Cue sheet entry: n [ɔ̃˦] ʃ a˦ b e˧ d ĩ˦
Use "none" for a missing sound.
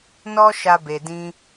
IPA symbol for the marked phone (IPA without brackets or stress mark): ɔ˦